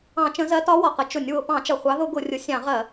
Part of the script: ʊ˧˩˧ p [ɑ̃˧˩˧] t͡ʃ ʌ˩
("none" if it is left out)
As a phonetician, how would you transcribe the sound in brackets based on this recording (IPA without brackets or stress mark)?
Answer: ɑ̃˧˩˧